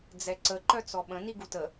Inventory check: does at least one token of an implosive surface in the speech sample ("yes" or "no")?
yes